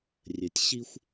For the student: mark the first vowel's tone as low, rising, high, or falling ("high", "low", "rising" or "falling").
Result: low